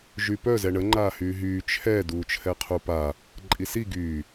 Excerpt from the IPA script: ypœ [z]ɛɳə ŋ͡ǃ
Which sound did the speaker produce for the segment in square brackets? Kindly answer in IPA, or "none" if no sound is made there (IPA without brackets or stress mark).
z